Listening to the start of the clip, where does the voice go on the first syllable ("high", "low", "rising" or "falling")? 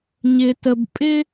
low